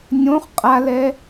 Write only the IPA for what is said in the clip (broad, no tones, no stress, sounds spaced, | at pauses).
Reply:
nʲ õ χ qʼ a l ɛ